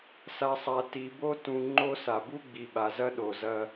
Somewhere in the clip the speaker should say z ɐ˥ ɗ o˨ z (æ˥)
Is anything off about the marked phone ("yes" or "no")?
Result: yes